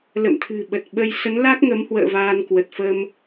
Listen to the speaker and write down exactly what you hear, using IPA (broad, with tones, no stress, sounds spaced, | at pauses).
l ə̰˧˨ m t̪ʰ ɨ̤˨˩ ɓ ə˨˩ t̚ ɓ ə˧ j s ə˨˦ n l a˦˥ k̚ ŋ ə˨˦ m h w ə̰ː˧˨ v aː˧ n k w ə˨˩ t̚ f ə˧ m